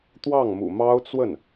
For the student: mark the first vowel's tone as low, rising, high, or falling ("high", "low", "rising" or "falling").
falling